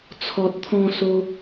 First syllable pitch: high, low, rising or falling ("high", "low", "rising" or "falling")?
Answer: low